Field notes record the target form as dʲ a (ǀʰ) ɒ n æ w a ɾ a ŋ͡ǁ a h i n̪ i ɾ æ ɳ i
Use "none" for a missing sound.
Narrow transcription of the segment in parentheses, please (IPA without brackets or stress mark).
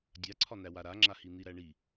ǀʰ